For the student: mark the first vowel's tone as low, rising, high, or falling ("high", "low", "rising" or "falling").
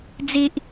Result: high